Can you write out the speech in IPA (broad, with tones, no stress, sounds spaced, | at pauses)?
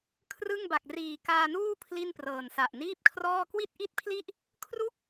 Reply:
kʰ r ɯ˥˩ ŋ b a˨˩ k̚ r iː˨˩ k aː˧ n uː˥˩ pʰ l i˥˩ n p r ɤː˨˩ n s a˨˩ ʔ n iː˥˩ p̚ kʰ r ɔː˥˩ k w i˥˩ t̚ ʔ i˥˩ t̚ pʰ l i˥˩ ʔ | kʰ r u˥˩ k̚